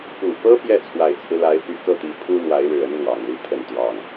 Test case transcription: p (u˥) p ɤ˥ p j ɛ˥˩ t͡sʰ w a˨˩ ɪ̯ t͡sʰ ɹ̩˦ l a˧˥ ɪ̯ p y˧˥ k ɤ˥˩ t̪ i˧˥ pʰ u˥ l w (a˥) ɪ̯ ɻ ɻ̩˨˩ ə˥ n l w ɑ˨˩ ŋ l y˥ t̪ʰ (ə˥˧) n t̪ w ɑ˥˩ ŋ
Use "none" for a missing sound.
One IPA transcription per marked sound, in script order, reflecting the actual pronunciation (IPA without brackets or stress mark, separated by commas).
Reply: u˨˩, a˧˥, ə˥˧